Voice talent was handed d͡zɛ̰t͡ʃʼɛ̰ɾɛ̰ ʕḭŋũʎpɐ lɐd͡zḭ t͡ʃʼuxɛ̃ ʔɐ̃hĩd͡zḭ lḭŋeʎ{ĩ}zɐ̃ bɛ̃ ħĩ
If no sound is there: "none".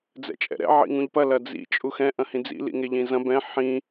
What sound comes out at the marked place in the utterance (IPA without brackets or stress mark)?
ĩ